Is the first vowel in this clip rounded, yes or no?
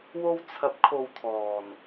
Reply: yes